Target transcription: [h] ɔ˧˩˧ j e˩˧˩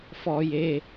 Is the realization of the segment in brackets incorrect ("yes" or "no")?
yes